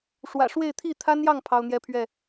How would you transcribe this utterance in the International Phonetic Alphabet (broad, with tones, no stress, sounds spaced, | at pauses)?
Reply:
ʂ w ä̰˨˩ ʂ w e˥˨ ɪ̯ t̪ʰ i˥˨ t̪ʰ a˦ n j ɑ˥˨ ŋ pʰ ɑ˦ ʊ̯ n̪ j ɛ˦ pʰ ɥ ɛ˥˨